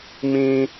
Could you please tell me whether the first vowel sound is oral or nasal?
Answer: nasal